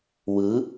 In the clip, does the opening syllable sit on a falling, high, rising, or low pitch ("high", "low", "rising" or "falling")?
rising